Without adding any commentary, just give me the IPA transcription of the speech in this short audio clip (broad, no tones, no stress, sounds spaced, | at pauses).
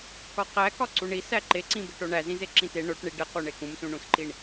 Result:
k ɒ q æ k ɒ ǀ u ɳ i s æ ǃ e ǀ ĩ b e ʈ o ɳ æ z ĩ z e ǁ ĩ t e ɳ o ʈ ɳ i ɖ e q u ɳ e k ũ m s ũ ɳ ũ s ǃ i ɳ